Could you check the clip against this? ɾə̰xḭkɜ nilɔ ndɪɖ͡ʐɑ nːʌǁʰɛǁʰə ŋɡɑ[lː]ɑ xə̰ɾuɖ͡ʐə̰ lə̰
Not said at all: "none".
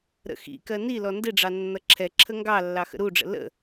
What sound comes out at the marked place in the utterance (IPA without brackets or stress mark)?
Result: lː